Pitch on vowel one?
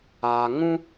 low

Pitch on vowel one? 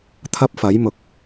high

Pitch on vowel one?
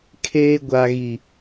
high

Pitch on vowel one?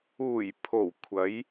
low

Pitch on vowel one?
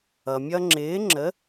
low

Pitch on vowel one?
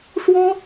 high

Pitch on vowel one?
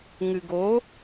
low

